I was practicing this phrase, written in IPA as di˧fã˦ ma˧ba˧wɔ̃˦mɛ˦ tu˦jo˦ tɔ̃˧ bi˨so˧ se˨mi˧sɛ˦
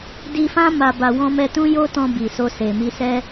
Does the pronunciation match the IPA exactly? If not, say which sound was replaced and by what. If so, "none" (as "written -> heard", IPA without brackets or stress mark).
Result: u˦ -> ũ˦